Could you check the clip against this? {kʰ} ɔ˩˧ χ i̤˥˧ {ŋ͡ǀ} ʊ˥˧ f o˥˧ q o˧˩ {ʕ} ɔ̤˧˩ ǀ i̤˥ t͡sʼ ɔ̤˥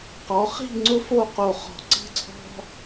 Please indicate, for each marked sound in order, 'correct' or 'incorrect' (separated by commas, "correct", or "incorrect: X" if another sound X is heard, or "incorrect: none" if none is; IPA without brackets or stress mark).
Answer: incorrect: q, correct, incorrect: χ